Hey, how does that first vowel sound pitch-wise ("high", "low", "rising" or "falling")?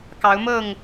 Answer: rising